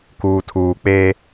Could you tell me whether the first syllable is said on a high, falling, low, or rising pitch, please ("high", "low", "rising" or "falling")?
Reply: low